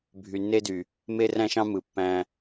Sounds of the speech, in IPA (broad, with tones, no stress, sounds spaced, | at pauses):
bʱ y˨ nː e˦ d y˨ | m e˦ r æ̃˦ ʃ ɑ̃˦ m ɯ˨ pː æ̃˧